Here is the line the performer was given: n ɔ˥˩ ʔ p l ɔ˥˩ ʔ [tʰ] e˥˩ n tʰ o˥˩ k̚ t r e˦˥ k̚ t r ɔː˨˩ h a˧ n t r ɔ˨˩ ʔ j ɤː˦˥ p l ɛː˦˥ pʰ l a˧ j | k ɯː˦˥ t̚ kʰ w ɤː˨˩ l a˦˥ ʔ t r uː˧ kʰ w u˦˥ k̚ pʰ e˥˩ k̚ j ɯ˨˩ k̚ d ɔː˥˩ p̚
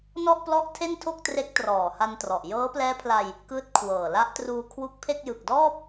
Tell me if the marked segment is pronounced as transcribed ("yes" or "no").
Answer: yes